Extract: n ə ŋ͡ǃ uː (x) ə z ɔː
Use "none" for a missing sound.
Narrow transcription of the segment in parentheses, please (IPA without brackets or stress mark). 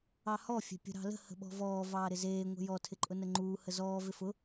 h